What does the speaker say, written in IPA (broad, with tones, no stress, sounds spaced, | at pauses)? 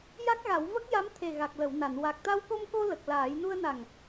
j a˦˥ k̚ ɣ a˨˩˦ w v ə˦˥ k̚ j a˧˥ m t̪ʰ e˨˩ ɣ a˨˩ k̚ l ə˨˩˨ w n a˨˩˨ n w a˨˩ k̚ t̪ a˧ w k o˧ m k o˧ l ə˨˩ k̚ l aː˨˩˦ j n u˧ ə̯ n a˨˩ ŋ